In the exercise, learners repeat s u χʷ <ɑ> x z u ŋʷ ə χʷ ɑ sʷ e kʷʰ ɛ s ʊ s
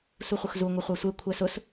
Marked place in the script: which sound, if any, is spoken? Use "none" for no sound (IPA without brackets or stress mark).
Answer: ə